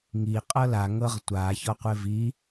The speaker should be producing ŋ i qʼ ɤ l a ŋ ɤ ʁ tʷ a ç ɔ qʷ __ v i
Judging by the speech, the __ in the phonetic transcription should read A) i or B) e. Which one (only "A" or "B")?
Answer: B